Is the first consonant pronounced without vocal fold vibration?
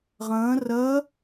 no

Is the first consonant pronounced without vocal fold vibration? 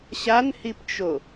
yes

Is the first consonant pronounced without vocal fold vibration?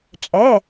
yes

